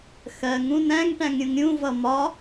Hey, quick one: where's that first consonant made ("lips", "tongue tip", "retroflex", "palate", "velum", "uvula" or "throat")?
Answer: velum